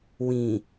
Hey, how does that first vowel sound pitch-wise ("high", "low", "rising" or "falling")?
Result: low